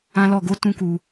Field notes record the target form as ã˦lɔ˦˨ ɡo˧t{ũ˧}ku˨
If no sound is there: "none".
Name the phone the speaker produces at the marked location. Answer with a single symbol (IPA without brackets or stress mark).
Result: ũ˧